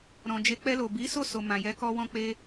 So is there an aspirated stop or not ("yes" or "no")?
no